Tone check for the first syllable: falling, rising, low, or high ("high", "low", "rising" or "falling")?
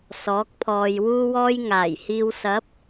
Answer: rising